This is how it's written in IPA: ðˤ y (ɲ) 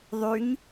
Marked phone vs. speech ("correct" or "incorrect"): correct